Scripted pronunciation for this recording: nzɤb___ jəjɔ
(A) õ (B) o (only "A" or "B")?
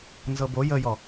B